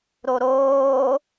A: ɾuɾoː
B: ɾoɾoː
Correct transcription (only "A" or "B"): B